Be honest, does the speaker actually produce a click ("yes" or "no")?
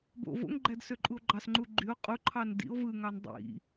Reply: yes